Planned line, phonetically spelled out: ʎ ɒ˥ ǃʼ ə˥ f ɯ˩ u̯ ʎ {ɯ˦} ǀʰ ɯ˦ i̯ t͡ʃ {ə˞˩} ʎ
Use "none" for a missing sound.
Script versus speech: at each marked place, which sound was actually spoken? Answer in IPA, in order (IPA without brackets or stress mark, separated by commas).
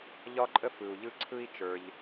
ɯ˦, ə˞˩